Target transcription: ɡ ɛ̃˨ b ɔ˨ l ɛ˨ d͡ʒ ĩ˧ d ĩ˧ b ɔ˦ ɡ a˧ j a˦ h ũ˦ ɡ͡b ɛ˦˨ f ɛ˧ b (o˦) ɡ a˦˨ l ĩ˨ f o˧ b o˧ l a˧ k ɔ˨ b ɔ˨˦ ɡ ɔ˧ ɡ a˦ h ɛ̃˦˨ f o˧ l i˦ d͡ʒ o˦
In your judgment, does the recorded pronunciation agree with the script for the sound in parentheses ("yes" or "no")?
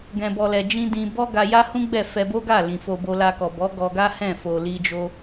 yes